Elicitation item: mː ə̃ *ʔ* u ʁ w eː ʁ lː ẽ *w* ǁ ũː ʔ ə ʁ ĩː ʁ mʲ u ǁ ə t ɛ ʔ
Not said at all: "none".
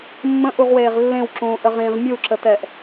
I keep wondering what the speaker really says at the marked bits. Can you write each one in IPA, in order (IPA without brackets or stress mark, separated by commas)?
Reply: ʔ, w